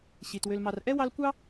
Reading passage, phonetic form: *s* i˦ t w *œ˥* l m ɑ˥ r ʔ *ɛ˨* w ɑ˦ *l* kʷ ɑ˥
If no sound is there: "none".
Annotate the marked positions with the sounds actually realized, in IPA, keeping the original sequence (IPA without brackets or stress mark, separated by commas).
ɕ, ø˥, ɛ˥, l